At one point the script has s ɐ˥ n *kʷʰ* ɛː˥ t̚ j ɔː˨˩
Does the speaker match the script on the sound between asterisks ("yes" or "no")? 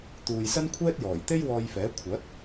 yes